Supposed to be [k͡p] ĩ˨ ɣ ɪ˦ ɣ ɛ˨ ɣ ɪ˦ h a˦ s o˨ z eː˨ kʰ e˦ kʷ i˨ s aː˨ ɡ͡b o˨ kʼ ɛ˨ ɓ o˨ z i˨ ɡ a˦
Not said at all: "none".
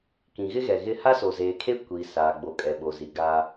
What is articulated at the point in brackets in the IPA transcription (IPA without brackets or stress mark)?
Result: k